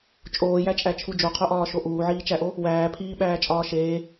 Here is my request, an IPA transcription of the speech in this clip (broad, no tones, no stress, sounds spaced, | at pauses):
t͡ʃʼ oː j æ t͡ʃʼ æ t͡ʃʰ u d͡ʒ o qʰ o ʔ ɒː ʃ o ʔ uː ʕ iː t͡ʃ æ ʔ o | w æː pʰ iː ɓ æː t͡ʃʼ ɒː ʃ eː